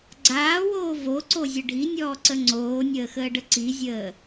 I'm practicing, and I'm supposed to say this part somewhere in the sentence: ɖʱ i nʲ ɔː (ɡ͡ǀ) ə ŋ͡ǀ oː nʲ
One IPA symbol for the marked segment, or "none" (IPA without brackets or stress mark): ǀ